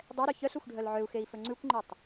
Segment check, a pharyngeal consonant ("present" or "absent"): present